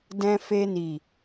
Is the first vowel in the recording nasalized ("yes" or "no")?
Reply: yes